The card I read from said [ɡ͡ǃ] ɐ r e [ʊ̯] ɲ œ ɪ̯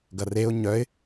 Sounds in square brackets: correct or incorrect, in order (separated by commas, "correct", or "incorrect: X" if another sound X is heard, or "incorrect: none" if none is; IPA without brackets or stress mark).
incorrect: ɡ, correct